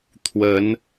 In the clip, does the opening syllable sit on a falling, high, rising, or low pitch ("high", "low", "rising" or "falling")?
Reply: rising